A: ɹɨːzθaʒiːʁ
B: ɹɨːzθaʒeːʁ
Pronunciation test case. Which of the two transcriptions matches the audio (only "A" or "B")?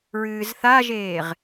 B